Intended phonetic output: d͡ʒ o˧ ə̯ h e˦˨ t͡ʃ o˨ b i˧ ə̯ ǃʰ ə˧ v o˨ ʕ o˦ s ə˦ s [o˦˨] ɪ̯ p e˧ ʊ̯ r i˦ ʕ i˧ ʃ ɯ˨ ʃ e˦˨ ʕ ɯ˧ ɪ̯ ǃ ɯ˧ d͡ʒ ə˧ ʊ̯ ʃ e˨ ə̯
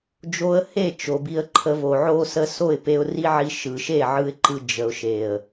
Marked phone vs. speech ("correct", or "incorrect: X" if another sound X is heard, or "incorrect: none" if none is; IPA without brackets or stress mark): correct